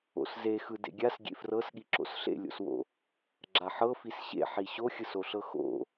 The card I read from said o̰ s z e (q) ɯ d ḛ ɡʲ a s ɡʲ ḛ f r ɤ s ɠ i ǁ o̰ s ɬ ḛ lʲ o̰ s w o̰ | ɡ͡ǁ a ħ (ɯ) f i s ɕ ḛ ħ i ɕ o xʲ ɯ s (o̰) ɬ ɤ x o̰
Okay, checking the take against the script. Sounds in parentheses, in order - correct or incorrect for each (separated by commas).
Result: incorrect, incorrect, incorrect